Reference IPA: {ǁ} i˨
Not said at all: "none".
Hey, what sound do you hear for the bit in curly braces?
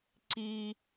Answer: ǀ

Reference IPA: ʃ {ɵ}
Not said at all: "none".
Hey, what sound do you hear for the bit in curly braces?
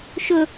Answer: ɵ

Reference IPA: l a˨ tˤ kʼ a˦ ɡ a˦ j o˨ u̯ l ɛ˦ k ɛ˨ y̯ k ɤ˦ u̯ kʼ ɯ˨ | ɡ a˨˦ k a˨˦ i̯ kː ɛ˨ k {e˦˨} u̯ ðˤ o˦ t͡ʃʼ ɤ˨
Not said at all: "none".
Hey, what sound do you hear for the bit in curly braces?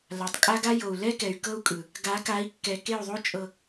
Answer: e˦˨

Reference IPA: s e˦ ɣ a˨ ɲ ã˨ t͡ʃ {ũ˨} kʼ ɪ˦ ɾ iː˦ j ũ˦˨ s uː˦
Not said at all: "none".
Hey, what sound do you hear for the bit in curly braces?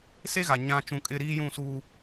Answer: ũ˨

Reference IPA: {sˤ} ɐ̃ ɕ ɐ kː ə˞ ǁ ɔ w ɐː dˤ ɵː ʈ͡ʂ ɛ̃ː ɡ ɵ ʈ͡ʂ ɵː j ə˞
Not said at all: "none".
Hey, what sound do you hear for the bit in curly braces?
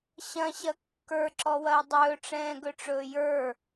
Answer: ɕ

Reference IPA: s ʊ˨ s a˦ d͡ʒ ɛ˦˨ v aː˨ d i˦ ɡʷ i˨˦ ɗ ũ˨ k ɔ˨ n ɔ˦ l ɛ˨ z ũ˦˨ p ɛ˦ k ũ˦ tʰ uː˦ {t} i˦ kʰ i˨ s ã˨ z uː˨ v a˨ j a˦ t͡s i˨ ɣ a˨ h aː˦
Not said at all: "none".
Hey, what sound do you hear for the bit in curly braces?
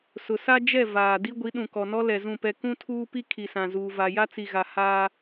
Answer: p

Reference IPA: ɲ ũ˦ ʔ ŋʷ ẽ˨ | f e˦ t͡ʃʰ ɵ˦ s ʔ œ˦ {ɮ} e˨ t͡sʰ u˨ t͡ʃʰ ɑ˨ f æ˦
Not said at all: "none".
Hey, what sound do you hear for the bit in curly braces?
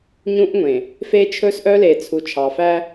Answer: l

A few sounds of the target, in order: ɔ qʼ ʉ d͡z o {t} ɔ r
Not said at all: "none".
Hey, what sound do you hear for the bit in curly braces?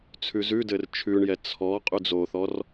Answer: θ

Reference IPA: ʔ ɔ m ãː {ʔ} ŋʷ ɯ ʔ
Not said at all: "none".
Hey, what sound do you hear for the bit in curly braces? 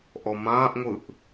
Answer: ʔ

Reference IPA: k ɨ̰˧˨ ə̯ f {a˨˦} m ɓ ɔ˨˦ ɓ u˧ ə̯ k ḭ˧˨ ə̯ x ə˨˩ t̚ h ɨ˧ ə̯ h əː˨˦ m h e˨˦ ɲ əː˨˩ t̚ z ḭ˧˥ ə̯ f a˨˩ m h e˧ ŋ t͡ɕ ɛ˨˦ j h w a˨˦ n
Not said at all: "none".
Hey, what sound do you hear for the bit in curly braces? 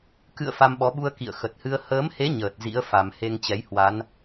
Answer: a˧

